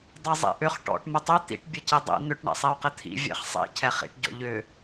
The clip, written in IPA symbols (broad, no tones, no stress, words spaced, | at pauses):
dˤɛzˤḭʔʏχ ʈɔ̰ʈ mɘtˤʏ t̪ḭʈ bʲɘcidˤḭ n̪ʏʈ ɳɛ̰sˤiu̯qɘt̪ʰḭ vʲɛ̰χsˤḭ cʰɛχḭʈ ɟɔ̰ʎʏ